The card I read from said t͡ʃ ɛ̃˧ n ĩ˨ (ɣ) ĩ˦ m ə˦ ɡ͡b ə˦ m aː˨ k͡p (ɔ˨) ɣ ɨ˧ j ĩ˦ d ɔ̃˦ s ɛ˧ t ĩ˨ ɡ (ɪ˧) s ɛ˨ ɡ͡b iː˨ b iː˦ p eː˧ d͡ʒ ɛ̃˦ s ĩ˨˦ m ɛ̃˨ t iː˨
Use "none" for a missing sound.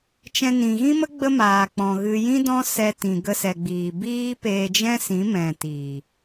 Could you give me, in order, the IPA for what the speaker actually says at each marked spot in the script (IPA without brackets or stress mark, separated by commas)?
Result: ɣ, ɔ̃˨, ə˧